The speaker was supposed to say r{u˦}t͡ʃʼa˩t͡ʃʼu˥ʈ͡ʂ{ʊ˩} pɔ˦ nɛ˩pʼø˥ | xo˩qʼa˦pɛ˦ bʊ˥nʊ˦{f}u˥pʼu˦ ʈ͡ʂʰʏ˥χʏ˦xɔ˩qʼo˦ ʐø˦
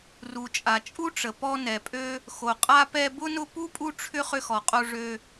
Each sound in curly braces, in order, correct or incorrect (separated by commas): incorrect, incorrect, incorrect